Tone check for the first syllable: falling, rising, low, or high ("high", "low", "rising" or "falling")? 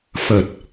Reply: low